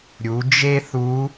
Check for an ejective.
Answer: absent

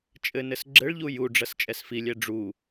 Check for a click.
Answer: present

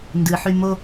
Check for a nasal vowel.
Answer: absent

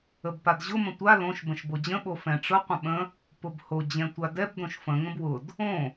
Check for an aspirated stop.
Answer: absent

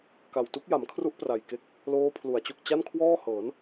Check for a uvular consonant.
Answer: absent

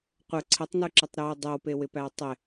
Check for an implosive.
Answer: absent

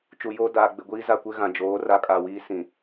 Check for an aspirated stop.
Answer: absent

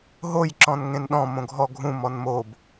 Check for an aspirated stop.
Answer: absent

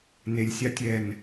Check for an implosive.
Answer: absent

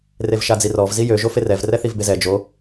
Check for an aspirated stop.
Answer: absent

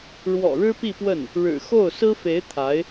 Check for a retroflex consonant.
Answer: present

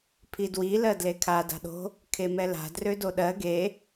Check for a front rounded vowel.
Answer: present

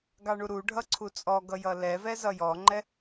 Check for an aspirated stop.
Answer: present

